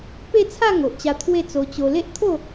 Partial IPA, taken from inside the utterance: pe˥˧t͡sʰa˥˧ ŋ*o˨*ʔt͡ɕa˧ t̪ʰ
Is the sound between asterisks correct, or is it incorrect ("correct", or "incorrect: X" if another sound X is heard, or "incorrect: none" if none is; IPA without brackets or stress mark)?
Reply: correct